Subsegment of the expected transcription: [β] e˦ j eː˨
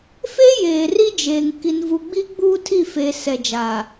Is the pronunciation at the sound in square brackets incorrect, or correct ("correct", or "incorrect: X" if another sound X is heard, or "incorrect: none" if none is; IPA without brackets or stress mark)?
incorrect: f